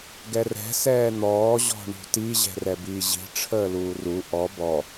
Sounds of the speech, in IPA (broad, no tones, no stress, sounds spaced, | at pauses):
ɡ ɛ r ɛ̤ s ɛː n̪ ɔː ʑ ɔ̤ ɳ ṳ t i ʑ ɛ̤ r ɛ b iː ʑ i̤ ʈ͡ʂʰ əː l uː r u ʔ ɔ b ɔ